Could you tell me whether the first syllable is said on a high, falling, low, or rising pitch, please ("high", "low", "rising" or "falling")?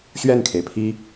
falling